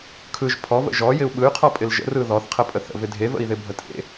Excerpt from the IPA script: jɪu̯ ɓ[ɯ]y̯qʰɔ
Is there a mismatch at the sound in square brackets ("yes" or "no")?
no